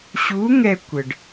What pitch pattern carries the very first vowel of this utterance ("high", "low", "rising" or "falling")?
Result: rising